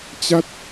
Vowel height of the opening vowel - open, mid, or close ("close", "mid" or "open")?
open